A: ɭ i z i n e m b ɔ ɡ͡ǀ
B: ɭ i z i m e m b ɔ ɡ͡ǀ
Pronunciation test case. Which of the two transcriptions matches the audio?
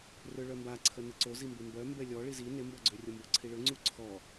A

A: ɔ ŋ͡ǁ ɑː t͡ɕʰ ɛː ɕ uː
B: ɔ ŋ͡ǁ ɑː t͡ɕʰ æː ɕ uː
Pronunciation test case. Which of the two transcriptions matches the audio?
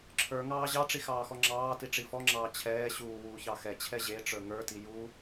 A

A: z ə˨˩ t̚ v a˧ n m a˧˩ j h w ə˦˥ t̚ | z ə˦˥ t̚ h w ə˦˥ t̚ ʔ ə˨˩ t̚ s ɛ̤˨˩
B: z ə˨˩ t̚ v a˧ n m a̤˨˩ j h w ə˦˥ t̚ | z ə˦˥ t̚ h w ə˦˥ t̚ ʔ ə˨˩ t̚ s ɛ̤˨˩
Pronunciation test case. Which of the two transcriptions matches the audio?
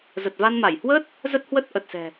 A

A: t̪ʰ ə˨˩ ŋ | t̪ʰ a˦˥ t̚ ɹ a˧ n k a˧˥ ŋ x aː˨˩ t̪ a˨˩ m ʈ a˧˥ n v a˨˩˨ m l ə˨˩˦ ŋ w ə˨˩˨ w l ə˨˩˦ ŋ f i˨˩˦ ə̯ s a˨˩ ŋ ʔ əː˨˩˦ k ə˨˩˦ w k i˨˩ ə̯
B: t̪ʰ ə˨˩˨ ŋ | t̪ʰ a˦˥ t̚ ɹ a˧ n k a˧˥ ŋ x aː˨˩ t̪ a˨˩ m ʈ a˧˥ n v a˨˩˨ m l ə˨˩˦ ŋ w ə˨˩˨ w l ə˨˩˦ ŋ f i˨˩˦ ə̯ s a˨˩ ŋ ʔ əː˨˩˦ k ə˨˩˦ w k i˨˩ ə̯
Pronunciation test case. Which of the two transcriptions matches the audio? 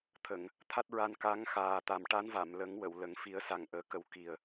B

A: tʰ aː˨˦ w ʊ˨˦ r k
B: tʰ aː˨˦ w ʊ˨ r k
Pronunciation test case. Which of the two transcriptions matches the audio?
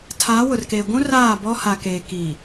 B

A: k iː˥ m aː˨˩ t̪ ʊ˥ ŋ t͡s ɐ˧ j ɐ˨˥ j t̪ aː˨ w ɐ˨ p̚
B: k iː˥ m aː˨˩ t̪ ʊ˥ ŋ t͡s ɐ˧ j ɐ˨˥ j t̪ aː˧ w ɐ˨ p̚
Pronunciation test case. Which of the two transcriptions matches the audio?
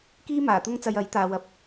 A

